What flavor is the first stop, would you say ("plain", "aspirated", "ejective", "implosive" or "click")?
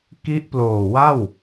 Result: plain